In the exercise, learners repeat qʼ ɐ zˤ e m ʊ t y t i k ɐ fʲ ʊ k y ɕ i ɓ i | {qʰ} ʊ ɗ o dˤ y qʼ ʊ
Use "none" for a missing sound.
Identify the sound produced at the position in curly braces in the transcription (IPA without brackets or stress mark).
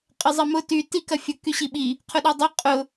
qʰ